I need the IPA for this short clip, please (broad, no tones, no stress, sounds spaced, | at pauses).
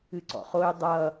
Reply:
ɨ ǀ ɔ̰ χ o y̯ dˤ ʌ